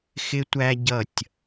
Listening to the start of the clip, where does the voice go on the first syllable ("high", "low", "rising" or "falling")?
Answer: high